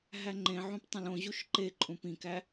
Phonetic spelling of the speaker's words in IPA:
ɦ æ ŋ͡ǃ ẽ ʕ ũ p tˤ ẽ l õ ʑ u ʃ ǃ e ǃʼ ũ p ĩ k æ

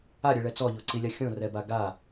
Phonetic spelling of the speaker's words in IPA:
a ɾʲ e ɭ ɛ t͡s ɔ ʎ o ǀ i lʲ a xʲ õ r ɛ b a ɡ a

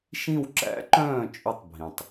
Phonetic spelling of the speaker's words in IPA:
ʃ ĩ˦˨ w ǁ æ̰˧˥ ǃ œ̃ː˦˨ t͡ʃʼ ʉ˦˨ tˤ bʱ ĩ˩ tˤ

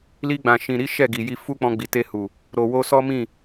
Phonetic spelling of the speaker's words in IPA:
l i˧ ɡ͡b ã˨ ʃ ĩ˨ ɾ i˨˦ ʃ ɛ˦˨ ɡ i˨ j i˧ f u˦ k͡p ɔ̃˧ ɡ͡b i˨ t e˧ h u˨ | ɾ o˨ w o˧ s ɔ˦ m ĩ˦˨

